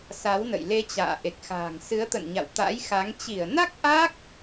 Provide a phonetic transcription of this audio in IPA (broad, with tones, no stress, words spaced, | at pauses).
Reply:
sa˨˦wnə̰˧˨j le˧t͡ɕa̰ː˧˨ ʔe˨˩k̚xa̤ː˨˩ŋsɨ˨˦ə̯ t̪ə̰˧˨nɲa̰˧˨w t̪a̰˧˥jxa˨˦ŋ t͡ɕi˧˩ə̯na˦˥k̚ ʔa˦˥k̚